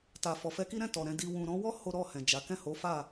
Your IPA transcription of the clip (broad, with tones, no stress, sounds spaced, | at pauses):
t a˨ f ɔ˨ f ɛ˧ k i˦ ɾ ɛ̃˦˨ t ɔ˨ ɾ ɛ̃˧ d i˨ w ũ˨ ɾ ɔ̃˧ w ɔ˦ h o˦ ɾ ɔ˦˨ h ɛ̃˨ d͡ʒ a˨˦ k ɛ̃˦˨ h o˨˦ f a˦˨